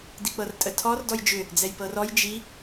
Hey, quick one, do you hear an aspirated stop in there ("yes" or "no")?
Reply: yes